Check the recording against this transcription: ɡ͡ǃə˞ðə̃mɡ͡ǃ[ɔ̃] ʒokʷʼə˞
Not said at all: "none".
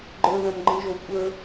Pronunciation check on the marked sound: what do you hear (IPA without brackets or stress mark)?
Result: ə̃